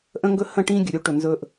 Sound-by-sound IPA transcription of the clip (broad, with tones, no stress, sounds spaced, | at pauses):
ʔ ə̃˦ ŋ ɡ ɵ˦ h ə̃˦˨ ʈ ĩ˦ ɡʲ ɵ˨ ɾʲ u˦ ʈ ɵ˨ n z ɵ˦ ʔ